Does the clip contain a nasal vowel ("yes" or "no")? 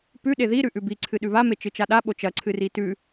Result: no